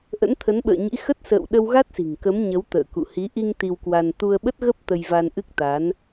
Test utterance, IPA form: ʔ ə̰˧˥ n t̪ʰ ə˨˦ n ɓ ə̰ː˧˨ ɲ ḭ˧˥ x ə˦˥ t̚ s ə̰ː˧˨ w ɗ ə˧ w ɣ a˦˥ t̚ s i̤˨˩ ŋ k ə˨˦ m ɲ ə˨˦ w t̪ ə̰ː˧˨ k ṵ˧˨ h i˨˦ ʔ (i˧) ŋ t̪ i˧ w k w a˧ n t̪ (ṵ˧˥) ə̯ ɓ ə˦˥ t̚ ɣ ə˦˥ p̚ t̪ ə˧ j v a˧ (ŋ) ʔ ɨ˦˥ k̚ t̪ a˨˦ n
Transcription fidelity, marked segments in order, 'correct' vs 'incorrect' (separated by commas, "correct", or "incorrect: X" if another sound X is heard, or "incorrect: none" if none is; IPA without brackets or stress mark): correct, incorrect: u˧, incorrect: n